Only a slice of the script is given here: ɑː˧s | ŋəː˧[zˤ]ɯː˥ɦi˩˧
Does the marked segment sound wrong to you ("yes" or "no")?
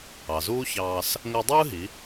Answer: yes